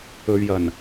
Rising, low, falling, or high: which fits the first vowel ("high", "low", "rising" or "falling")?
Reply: low